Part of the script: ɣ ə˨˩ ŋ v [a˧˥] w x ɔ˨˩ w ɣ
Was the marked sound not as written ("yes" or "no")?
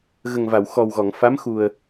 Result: yes